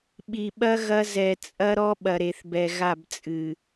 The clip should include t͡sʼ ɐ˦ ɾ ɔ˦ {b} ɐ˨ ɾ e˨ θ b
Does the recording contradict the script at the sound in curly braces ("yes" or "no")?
yes